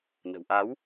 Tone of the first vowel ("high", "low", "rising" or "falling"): low